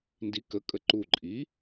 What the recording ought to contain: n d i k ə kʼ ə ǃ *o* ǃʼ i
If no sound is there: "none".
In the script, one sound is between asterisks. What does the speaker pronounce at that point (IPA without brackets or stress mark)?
u